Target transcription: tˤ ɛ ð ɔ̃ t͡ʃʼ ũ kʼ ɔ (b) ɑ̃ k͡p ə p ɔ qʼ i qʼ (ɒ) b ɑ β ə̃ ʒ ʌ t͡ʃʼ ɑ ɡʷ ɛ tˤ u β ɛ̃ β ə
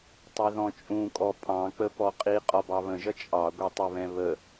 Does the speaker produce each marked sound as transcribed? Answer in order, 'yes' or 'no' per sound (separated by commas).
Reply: no, yes